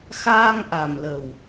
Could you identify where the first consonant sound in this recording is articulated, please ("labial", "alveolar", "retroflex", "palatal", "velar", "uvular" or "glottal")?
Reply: velar